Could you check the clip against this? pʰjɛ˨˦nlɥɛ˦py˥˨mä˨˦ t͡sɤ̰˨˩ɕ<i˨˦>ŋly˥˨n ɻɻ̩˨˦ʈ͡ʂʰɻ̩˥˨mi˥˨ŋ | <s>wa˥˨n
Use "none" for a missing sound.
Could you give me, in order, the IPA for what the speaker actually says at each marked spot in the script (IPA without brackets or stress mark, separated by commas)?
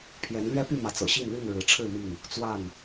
i˥˨, t͡s